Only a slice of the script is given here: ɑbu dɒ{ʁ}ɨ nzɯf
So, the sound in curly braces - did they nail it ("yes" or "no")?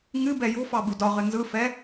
yes